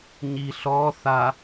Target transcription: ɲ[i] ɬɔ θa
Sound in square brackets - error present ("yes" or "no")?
no